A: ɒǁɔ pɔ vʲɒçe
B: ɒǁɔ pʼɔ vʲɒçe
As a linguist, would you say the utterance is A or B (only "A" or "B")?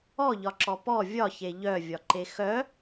A